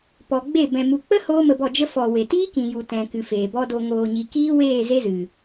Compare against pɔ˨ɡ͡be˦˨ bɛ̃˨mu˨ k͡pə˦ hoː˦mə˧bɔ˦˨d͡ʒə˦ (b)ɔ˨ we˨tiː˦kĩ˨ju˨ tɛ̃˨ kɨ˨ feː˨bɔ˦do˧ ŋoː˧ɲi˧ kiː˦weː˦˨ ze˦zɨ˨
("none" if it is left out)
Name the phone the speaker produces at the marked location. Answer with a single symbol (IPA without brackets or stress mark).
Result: f